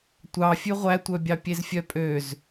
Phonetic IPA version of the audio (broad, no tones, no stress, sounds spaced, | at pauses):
tʷ ɑ fʲ ʉ ʁʷ æ tʷ œ bʲ ɑ pʲ e z fʲ œ pʼ ø z